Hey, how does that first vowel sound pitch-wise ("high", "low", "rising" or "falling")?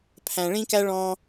low